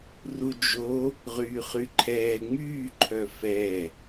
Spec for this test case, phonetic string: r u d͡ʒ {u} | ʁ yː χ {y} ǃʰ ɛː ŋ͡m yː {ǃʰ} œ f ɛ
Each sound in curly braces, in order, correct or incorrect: incorrect: o, correct, correct

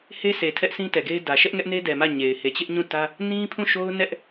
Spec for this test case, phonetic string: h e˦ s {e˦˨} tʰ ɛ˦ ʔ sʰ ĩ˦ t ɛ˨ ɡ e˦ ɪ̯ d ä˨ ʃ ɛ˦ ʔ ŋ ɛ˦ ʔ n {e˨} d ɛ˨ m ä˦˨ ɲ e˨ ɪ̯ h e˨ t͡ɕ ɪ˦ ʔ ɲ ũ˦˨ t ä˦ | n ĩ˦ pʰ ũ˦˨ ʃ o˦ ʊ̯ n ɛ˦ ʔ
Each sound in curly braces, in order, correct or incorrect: incorrect: e˨, incorrect: e˦

